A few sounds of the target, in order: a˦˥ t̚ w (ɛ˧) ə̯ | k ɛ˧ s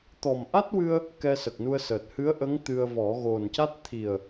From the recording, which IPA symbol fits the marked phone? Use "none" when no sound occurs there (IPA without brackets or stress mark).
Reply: ɨ˧